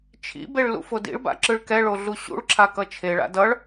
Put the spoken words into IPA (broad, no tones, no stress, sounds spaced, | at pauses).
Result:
t͡ʃʰ ḭ b e ɭ l ṵ f o d ḭ ɭ b a̰ ǁ ɯ ɭ k ɛ ɭ o ɮ u ɕ ṵ ɭ ǁʰ a k ʌ t͡ʃʰ e ɭ a̰ d ʌ ɭ